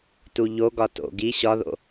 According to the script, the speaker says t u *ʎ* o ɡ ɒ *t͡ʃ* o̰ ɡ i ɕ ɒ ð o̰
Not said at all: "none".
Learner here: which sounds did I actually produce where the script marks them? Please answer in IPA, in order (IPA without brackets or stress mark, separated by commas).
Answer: ʎ, t